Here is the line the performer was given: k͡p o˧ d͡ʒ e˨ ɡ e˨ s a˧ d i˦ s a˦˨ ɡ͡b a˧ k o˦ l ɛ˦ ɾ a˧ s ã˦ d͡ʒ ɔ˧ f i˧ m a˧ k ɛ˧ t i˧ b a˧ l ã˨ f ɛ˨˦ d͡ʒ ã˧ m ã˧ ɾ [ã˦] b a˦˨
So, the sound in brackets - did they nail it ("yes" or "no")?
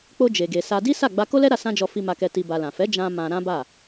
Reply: yes